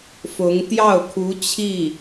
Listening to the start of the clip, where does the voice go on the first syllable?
rising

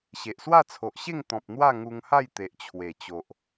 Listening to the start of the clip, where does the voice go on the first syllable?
low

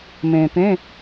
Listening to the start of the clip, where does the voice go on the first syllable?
low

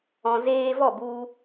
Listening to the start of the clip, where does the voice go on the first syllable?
low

